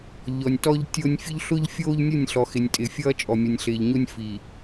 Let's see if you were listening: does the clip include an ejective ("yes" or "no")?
yes